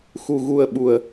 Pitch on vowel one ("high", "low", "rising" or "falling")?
low